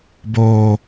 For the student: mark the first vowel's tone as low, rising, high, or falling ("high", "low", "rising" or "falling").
high